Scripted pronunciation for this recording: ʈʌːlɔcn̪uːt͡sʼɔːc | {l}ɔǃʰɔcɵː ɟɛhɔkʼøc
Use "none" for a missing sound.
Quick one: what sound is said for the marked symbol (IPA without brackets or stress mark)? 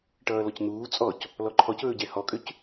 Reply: l